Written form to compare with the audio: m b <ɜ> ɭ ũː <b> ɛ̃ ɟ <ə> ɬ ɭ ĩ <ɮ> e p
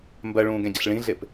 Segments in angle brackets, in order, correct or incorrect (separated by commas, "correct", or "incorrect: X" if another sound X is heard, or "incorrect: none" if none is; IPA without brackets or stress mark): correct, incorrect: ɡ, correct, correct